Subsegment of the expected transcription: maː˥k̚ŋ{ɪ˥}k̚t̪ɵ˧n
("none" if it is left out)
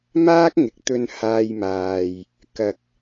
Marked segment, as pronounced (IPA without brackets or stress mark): ɪ˨˥